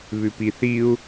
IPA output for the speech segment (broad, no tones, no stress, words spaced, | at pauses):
βʉpiθiu̯